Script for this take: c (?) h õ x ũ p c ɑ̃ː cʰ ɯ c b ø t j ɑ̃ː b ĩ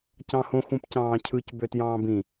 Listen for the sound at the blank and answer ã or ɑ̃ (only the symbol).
ɑ̃